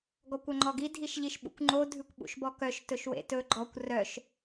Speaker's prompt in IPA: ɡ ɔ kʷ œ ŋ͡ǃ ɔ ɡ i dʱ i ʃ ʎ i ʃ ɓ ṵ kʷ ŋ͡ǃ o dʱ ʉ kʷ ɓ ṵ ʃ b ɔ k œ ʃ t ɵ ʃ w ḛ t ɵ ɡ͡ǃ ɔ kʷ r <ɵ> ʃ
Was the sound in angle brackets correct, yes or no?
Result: no